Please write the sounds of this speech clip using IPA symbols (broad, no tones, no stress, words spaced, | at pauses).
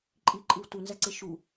ǃʼiǃʼɯw tunzæǀe ʃu